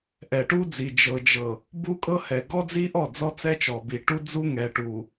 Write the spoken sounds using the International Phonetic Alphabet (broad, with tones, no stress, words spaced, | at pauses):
ʔɛ˨ʈu˦d͡zi˨ d͡ʒɤ˨d͡ʒɤ˨ | bu˦kʼɤ˦hɛ˨ ɡɔ˦d͡zi˦ʔɔ˦˨ d͡zɔ˦t͡sɛ˦t͡ʃɔ˨bi˨ ʈu˦d͡zu˦ŋɛ˨ʈu˨